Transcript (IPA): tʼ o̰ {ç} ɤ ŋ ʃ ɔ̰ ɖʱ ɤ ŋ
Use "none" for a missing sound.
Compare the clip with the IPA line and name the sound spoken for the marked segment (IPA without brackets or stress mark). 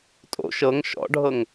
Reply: ʃ